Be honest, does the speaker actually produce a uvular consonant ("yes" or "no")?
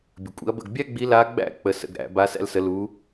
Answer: no